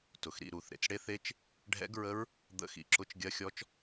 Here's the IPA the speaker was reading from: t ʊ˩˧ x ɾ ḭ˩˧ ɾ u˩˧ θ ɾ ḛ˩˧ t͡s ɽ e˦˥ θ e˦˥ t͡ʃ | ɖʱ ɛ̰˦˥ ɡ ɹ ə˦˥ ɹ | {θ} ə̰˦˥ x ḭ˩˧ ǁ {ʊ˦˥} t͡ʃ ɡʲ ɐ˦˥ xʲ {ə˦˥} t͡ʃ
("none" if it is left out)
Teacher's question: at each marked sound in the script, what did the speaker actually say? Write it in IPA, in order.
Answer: d̪, ʊ˦˥, ɔ˦˥

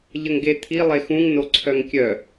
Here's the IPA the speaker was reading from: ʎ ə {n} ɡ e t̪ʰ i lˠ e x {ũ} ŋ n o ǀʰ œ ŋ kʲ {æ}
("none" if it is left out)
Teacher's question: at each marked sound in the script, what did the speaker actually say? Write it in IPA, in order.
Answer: ŋ, ũ, œ

